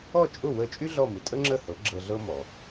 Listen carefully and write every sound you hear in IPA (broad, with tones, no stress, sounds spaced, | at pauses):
ɔ˥˩ t͡ʃʼ ʊ˥˩ w əː˧ t͡ʃʼ y˥ ɮ ɔ˥˩ m ɨ˩ tʼ ə˥ ŋ͡ǁ ə˥˩ h ɤ˩˥ ɡ͡ǁ ɤ˧ ɮ ɤ˥ m ɔ˩